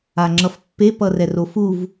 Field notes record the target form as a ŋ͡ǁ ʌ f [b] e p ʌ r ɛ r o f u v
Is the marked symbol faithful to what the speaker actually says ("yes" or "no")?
no